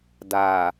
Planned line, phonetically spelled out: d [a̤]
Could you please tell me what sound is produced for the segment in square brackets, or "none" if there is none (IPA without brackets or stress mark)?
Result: a